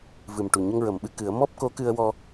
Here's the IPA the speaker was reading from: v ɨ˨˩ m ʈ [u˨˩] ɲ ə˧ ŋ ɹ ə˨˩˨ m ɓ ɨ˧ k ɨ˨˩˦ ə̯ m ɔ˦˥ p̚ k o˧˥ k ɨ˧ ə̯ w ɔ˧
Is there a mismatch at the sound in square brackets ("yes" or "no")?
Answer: no